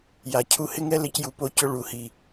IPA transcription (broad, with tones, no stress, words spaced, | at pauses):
ja˨ cʰu˧hɪ˦ŋɛ˦ lɪ˧cju˨po˧cʊ˧ ɭu˨hi˨